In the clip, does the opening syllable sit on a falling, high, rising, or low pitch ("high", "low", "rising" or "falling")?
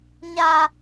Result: high